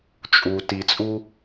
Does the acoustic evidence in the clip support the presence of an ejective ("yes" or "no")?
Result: yes